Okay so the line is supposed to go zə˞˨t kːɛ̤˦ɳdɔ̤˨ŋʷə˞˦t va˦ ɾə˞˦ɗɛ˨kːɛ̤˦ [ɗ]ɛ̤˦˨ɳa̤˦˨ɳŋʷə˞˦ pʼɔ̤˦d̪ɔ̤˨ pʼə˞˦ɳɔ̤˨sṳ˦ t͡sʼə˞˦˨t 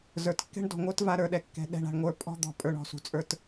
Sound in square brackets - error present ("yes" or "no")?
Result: no